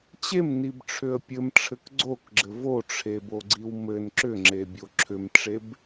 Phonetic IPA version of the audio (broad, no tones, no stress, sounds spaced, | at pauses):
t͡ɕ e m n i b ʈ͡ʂʰ ʏ ə̯ pʲ ɘ m ʈ͡ʂʰ ɘ k ɡ͡ǀ o k ɡ͡ǁ ɘ v o ʈ͡ʂʰ e b o ɡ͡ǀ i w m ɘ n ǁ ʏ ŋ͡ǁ e bʲ o ǁʰ ʏ m ʈ͡ʂ e b